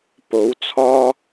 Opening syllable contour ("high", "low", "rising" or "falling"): rising